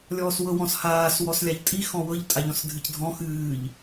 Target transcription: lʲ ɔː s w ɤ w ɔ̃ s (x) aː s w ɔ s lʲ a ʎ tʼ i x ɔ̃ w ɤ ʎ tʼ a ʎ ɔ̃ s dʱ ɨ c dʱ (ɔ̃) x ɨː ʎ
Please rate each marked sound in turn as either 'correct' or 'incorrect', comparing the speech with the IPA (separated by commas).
incorrect, correct